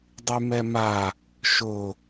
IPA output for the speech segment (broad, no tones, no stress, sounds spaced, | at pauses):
dˤ y m ɛ m a | ʃ ʊ